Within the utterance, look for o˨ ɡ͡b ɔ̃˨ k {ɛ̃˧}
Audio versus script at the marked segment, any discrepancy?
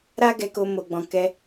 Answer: yes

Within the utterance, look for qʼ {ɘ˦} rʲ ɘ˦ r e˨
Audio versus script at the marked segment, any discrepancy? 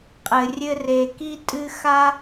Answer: yes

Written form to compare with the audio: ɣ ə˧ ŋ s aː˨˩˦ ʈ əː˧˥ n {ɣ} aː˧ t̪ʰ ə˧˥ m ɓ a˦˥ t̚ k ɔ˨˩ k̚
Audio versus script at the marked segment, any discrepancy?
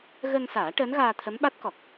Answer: no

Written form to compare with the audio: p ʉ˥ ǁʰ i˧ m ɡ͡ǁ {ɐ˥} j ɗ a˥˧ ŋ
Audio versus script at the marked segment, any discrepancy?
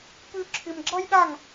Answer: no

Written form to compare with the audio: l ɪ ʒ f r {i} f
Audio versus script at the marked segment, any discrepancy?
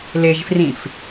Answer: yes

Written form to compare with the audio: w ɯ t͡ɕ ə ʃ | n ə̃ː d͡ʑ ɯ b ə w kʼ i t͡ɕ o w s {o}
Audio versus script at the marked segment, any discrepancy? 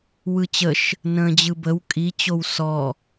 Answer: yes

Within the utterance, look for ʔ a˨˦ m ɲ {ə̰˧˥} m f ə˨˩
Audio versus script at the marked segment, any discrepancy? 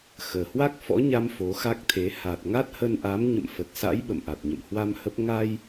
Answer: yes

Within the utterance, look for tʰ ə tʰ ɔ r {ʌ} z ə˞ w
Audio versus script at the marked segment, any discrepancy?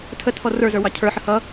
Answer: yes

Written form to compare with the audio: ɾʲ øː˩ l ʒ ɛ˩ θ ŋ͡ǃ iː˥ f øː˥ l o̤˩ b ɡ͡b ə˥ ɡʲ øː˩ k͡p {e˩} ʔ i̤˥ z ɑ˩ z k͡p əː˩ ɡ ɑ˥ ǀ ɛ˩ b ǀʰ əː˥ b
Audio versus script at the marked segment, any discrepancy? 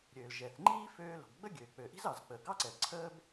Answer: yes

